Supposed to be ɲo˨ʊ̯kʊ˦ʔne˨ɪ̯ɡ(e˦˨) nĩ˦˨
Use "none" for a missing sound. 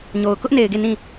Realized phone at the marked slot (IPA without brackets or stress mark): e˦˨